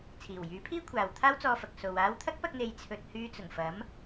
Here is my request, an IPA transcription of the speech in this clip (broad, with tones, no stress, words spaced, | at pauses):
t͡sʰiː˨˩wjyː˨˥pʰiː˥ kʷʰaː˨wt̪ʰaː˥wt͡sɔː˧fɐ˨k̚ so˨w aː˧wt̪ʰɐ˥k̚pɐ˧k̚ n̪e˨˧jt͡sʰɵ˨t̚ hyː˧t͡sʊ˨˩ŋ fɐ˨˥m